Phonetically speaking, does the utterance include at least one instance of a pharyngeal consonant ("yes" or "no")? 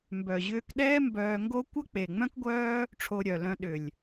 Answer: no